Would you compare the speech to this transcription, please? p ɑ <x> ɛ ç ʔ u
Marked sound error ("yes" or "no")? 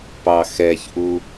no